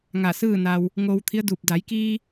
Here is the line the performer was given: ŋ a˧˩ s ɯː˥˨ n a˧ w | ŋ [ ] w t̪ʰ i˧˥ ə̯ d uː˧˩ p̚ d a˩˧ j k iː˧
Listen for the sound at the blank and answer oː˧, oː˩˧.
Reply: oː˧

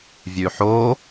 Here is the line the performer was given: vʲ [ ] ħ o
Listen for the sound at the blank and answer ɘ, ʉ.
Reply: ʉ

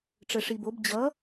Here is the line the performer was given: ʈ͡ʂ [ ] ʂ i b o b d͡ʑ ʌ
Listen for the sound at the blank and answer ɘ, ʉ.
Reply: ɘ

